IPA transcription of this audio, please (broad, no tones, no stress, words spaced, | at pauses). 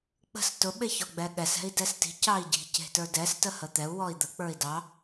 k͡pə̤s tʊ ɓeçɔɡ͡bɛɠɛs ɛ̤i̯dɛsti̤ cɑi̯ɟi̤ ce̤tə˞dɛs təhət̪ɛu̯ wɔi̯d̪ə k͡pə˞i̯dɑ